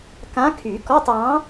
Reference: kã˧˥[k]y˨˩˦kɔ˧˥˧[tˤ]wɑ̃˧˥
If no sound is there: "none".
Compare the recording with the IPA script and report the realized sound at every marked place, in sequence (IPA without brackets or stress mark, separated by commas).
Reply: kʰ, tˤ